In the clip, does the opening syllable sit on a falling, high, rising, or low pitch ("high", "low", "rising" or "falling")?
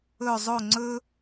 falling